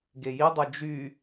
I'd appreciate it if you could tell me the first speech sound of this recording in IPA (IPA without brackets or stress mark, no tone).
ɡ